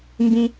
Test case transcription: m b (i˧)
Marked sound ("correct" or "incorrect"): incorrect